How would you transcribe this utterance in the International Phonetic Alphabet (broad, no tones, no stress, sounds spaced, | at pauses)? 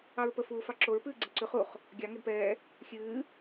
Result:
ɑ ɹ p ə f uː f ɑ ǁ o ɹ p ɨː ɡ͡ǀ ɨ ǀ ʉ χ u χ | ɡʲ ɑ ŋ ɛ d p ɛː | xʲ ɨː